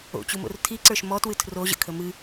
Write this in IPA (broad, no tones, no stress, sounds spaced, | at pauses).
o̰ t͡ɕ u m o̰ r tʰ i ǀ ə˞ ʃ m ɔ t w ɨ tʰ r o ʑ ə̰ kʰ ə m ɨ